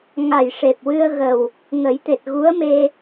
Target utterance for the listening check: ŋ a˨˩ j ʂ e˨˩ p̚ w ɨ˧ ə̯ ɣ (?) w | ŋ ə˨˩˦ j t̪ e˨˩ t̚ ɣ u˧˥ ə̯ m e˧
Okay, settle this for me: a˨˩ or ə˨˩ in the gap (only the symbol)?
ə˨˩